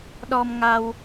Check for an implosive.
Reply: present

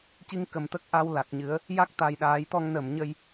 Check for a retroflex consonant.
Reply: absent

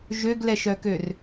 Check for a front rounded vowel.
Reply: present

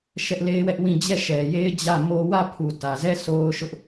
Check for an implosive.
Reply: absent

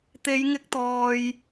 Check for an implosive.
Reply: absent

